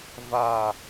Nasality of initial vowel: oral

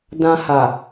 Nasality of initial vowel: nasal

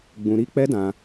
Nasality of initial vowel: nasal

